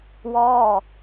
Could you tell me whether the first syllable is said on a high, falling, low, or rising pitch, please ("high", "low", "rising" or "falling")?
falling